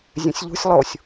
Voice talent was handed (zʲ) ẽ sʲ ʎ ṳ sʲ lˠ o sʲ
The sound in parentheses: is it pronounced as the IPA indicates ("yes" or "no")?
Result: yes